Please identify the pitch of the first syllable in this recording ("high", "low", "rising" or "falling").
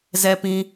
low